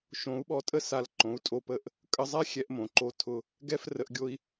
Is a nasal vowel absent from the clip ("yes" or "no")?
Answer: no